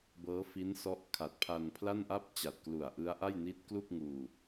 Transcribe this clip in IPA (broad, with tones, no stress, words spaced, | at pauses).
bɤː˦˥fi˦˥nsɔ˦˥ʔ kʰa˨˩t̚pʰa˧npʰla˥˩nʔa˥˩p̚ t͡ɕa˨˩t̚klu˨˩a̯ʔɯ˦˥a̯ʔa˥˩j ni˦˥t̚klu˥˩k̚ ŋuː˧